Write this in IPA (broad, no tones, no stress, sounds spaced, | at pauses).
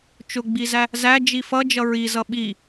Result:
t͡ʃ ʊ ɡ͡b i z æ | z æ d͡ʒ i f ʌ d͡ʒ ʌ ɹ i z ʌ ɓ i